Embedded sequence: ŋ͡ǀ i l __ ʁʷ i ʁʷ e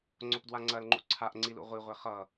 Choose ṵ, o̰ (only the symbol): ṵ